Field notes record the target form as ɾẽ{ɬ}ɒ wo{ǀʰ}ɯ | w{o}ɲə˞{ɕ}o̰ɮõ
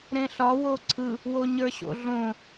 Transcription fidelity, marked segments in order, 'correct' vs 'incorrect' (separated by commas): correct, correct, correct, correct